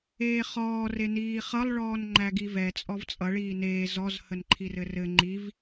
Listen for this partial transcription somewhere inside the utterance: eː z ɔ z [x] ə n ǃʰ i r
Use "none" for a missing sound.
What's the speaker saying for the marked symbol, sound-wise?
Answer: h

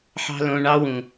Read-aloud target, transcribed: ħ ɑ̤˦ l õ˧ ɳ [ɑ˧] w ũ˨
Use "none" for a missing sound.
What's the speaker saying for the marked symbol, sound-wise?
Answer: ɑ˧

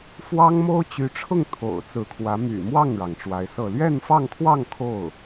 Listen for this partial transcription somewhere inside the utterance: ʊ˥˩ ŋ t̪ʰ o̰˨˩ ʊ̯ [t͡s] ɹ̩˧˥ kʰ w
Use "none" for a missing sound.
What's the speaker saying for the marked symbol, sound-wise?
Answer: t͡s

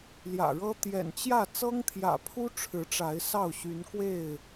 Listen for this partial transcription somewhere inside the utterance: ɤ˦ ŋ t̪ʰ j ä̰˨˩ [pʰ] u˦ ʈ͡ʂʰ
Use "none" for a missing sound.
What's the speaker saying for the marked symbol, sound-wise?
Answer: pʰ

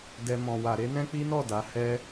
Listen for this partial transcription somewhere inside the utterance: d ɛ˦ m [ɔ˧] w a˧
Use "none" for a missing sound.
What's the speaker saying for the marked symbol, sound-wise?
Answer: ɔ̃˧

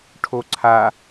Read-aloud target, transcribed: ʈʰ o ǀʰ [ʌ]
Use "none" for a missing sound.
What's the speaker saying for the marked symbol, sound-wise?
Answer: a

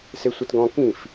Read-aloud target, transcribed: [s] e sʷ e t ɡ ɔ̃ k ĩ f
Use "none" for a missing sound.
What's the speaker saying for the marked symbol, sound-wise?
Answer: s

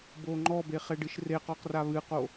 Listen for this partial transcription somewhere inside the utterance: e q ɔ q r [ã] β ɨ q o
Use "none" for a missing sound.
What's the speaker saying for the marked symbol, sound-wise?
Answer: a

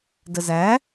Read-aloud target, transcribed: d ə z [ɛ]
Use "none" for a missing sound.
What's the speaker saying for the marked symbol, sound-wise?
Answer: æ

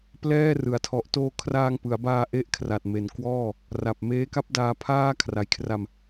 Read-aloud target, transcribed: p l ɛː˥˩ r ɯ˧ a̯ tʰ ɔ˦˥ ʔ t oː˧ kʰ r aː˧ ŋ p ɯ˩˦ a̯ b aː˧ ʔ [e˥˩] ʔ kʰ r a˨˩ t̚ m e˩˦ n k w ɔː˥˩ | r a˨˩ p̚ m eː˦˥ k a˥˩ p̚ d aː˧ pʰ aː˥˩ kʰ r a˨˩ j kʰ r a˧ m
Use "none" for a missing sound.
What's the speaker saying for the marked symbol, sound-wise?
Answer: e˥˩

